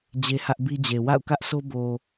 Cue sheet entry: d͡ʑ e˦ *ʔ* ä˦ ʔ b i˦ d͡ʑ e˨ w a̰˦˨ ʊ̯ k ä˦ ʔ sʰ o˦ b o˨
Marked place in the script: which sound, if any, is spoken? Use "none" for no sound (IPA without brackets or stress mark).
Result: h